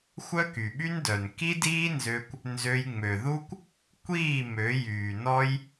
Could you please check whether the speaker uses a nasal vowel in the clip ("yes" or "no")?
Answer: no